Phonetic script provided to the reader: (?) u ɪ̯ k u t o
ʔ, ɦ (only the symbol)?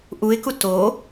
ʔ